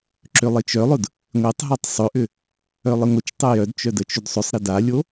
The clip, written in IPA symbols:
ǁølˠit͡ʃœlˠʊd | ŋʷetˤɦɔtˤ sˤʏʔʏ | œlˠɪŋʷət͡ʃtˤʊ jœdt͡ʃœ dət͡ʃʏdsˤʏsˤɾɪ dalʲo

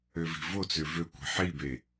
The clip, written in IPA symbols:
øvi̤vot͡sø vøkʷe̤ ħibe

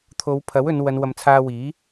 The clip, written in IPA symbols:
t̪ʰo˨˧wpʰɐ˨˥wɵ˨˧n wɐ˨˧nwɐ˨˧mt͡sʰaː˧ wiː˨˥

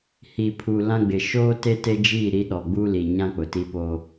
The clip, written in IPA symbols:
hi˨pʰu˨ lã˦ɡ͡bɪ˨ ʃoː˦ te˦te˦d͡ʒiː˦˨ ɾi˦ɗɔ˨ ɡ͡buː˦liː˨ɲã˦ k͡pʊ˨ti˦poː˦

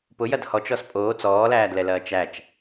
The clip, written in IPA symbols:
pʊjɐd hɔt͡ʃɔs pʼoː t͡sɔːlæːdlɛlɐː t͡ʃæt͡ʃ

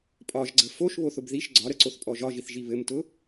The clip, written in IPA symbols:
pʼɒʒɡ͡ǀə foʃβoθʊb ðiʃ ɡ͡ǀɒɾəǀoθpʼɔ ʒɒʒiθʒi βɘmtʊ

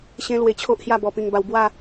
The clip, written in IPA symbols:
ɕẽ˦ lwe˧t͡ɕʰo˦ʔhja˥˧ bɔ˧pĩ˧ŋba˧w bwa˥˧

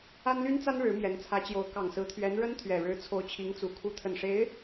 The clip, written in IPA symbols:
a˥nly˥nt͡sa˥n ɻɻ̩˧˥mjɛ˧˥nt͡sʰä˧˥t͡ɕjo˧˥ʊ̯ kɑ˨˩ŋsɹ̩˧˥t̪ʰɥɛ˧˥n ɻə˥nt̪ʰɥɛ˨˩ɻɻ̩˧˥ t͡sʰo˧˥ʊ̯t͡ɕʰi˧˥ŋt͡su˨˩ kʰu˧˥t̪ʰə˨˩nʂe˧˥ɪ̯

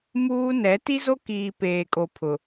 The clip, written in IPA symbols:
muː˦ nɛ˨˦ ti˦zo˦kiː˨ peː˨kʼo˨ pʰʊ˨

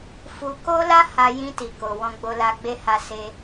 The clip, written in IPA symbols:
fu˧ ko˦ la˦ ha˧ jĩ˧ti˨ ko˨ wɔ̃˧ɡ͡bo˧la˧ɡ͡be˦ ha˧ se˧

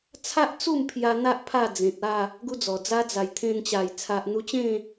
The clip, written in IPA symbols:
t͡sʰa˦ʔt͡su˥˧mpʰja˧ n̪a˦ʔ pʰa˥˧d͡zẽ˨t̚a˥˧ | ɡu˦d͡zɔ˨˩d͡za˦ d͡za˨˩jt̪ʰẽ˧nt͡ɕa˨˩j t͡sʰa˨ʔn̪u˧t͡ɕẽ˥˧

